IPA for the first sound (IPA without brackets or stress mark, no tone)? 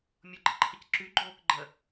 mʲ